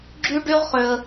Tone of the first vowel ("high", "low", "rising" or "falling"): high